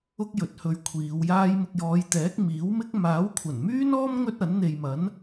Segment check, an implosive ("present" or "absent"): absent